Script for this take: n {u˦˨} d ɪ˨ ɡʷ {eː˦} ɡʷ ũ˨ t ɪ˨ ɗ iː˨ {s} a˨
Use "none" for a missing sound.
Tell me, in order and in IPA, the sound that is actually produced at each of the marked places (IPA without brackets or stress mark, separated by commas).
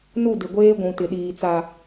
u˦˨, eː˦, t͡s